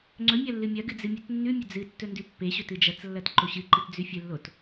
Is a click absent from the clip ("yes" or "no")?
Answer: no